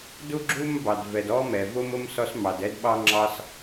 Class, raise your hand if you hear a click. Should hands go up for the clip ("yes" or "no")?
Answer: yes